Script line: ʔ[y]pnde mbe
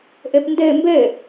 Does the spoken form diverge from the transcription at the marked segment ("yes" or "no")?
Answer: yes